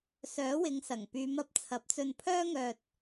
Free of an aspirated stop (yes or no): no